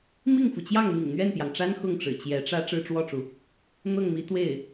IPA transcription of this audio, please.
m i˥˩ ŋ f u˩ t͡ɕ j ɑ˥˩ ŋ m ḭ˨˩ ŋ n̪ ɥ ɛ˥˩ n p j ɑ˩ ŋ ʈ͡ʂ a˥ n x ʊ˥˩ ŋ ʈ͡ʂ ɻ̩˨˩ t͡ɕ j ɛ˧˥ ʈ͡ʂ ä˥ ʈ͡ʂ ɻ̩˥˧ ʈ͡ʂ w ɔ˥˩ ʈ͡ʂ u˩ | n̪ ɤ˥˩ ŋ m i˧˥ t̪ w e˥˩ ɪ̯

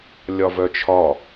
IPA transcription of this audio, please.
lʲ ɒ v œ t͡ʃʰ ɒ

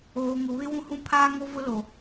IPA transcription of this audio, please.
oː˨ ŋ ʊ˨ β ɪ˦ w ũ˦ h ũ˦ pʰ aː˦ ŋ o˦ v ʊ˦ l o˨

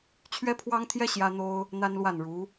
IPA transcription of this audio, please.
t͡ɕʰ ɥ ɛ˥ pʰ w ɑ˥ ŋ t̪ʰ j ɛ˥ ɕ j ä˥ n̪ o˥ ʊ̯ | n̪ a˥ n l w a˥˩ n ɻ u˧˥

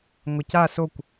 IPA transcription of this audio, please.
ŋʷ ɪ c a s o kʷ

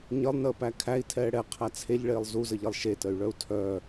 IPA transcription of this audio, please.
ɲ ə lˠ n əː p æ kʰ æ i̯ tʰ ɛː ɽ ɛ qʰ æ t͡sʰ e ʎ ɭ eː lˠ z u z ə ʎ e lˠ ʃ e t ə y̯ ɭ œ u̯ tʰ œ

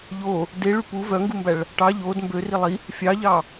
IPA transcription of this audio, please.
ʎ o | d e ɭ y p u v œ ŋ ɡ u m b æ ɭ | ʈ ɑ ʎ o d m b ø r i lˠ i | fʲ ɑ ʎ ɑ

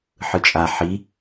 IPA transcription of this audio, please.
ħ ɯ t͡ʃʼ a ħ i

